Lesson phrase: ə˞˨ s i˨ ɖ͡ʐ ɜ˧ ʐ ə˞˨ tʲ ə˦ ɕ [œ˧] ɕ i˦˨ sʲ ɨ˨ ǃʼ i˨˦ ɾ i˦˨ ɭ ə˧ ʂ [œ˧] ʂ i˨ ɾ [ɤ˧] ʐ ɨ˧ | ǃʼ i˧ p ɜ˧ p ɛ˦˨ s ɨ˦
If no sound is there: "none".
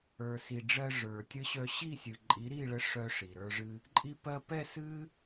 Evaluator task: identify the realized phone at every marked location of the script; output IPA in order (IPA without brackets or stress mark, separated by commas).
œ˧, œ˧, ə˞˧